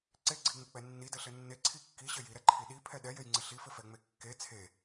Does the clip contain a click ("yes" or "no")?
yes